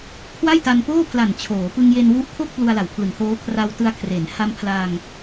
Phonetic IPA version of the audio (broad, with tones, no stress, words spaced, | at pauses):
kʰwa˥˩jta˧npoː˥˩pʰla˨˩n t͡ɕʰoː˩˦ pɯ˧ŋje˧nwu˦˥ʔkʰo˥˩k̚ plu˧a̯la˩˦wpʰlɯ˩˦ŋhoː˦˥ kʰra˧wtɯ˧a̯kʰre˩˦n ha˧mpʰla˧ŋ